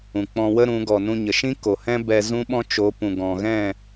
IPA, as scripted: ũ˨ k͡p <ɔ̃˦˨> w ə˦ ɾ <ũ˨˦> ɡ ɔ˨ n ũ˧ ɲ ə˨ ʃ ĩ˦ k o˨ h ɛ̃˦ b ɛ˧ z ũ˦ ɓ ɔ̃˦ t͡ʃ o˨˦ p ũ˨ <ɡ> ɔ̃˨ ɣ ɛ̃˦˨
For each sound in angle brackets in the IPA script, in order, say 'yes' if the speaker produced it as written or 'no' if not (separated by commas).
no, yes, yes